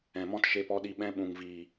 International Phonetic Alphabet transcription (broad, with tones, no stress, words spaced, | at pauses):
ɛ̃˨mɔ̃˦t ʃe˧pɔ˧ɗi˧ ɓɛ̃˧ɓũ˨ŋ vi˨